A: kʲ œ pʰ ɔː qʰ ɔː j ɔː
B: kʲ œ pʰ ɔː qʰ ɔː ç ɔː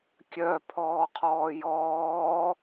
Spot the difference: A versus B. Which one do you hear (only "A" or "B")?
A